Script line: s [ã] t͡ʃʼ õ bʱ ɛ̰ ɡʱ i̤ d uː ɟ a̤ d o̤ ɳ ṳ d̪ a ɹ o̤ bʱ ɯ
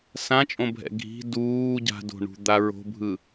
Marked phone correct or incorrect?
correct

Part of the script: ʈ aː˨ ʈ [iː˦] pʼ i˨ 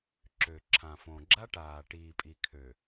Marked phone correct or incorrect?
incorrect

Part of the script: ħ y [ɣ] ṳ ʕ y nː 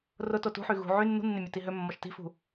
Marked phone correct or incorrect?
correct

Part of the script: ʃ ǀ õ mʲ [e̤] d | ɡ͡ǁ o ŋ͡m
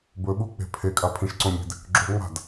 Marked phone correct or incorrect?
correct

